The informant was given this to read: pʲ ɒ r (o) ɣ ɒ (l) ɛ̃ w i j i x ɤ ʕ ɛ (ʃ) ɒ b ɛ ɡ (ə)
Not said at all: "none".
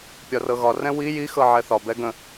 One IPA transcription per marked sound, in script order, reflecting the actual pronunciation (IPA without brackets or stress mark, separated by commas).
ɤ, r, θ, ə̃